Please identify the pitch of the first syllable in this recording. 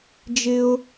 high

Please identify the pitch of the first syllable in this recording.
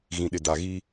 low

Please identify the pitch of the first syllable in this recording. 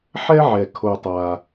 high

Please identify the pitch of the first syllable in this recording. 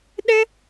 high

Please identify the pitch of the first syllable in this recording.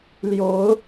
rising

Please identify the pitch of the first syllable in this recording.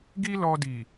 high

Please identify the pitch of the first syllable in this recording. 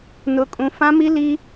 high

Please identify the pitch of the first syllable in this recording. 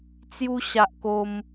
high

